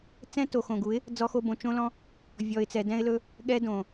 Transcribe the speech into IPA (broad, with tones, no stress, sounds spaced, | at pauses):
t͡s ɛ̃˦ t o˨ x õ˨ ɡ u˨˦ ɪ̯ | d͡z ɔ˧ x o˧ b õ˨ t͡ʃ õ˦ l ɔ̃˦ | vʲ ɔ˨ ɪ̯ t͡s ɛ˨ d ɛ̃˧ ɪ̯ l ɵ˧ | ɠ ɛ˦ d õ˨